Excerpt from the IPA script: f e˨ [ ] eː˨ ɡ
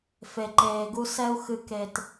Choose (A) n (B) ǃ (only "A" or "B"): B